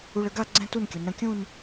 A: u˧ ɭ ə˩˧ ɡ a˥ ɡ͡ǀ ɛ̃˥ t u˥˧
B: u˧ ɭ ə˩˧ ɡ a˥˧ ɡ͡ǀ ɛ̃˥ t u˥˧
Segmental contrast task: B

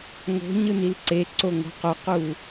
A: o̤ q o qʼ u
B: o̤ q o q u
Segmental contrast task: B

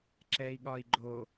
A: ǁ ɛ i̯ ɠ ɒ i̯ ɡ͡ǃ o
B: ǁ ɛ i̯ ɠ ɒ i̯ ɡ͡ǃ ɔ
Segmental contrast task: A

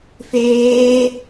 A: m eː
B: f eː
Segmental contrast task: B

